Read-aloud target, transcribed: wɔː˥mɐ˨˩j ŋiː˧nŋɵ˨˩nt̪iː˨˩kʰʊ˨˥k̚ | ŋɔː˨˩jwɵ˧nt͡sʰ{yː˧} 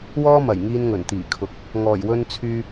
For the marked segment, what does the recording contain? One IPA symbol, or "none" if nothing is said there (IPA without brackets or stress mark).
yː˧